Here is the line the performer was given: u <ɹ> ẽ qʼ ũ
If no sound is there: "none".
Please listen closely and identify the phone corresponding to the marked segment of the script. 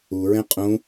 ɹ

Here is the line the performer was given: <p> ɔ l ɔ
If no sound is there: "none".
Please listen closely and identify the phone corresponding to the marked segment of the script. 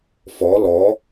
f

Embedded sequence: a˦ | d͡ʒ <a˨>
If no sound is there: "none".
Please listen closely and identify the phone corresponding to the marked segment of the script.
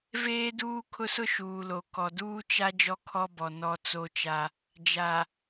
a˨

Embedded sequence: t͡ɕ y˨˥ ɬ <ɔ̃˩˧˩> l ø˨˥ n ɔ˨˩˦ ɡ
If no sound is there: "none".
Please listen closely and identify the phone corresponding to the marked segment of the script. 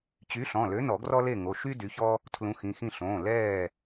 ɔ̃˩˧˩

